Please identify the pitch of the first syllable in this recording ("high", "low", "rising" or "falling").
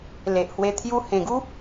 low